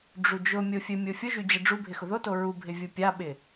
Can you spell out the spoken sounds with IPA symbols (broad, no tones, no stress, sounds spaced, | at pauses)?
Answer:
ɖ͡ʐ u d͡ʒ ʊ mʲ o fʲ ɘ mʲ o fʲ ʊ ʒ y d͡ʑ ɘ ɖ͡ʐ u bʱ ɪ x ʊ ð o t o ɹ u bʱ ɪ vʲ ʊ pʲ a ɓ ɪ